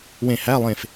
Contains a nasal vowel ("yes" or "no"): yes